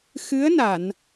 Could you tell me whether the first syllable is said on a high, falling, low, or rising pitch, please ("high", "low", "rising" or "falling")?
rising